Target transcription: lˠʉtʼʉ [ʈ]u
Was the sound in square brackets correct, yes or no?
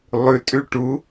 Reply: yes